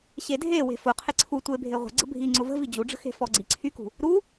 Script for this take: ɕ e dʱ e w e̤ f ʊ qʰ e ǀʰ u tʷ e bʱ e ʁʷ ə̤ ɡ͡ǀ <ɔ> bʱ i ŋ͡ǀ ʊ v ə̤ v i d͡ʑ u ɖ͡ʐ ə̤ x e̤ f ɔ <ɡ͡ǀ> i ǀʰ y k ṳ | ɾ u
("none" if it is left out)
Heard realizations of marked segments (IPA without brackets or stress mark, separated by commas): ə, ɡ͡ǀ